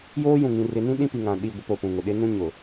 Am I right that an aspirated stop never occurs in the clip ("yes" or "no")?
yes